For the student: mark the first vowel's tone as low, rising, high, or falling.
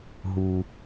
low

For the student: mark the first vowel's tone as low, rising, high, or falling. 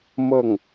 falling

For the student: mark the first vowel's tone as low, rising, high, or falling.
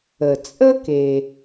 low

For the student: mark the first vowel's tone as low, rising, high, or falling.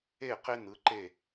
falling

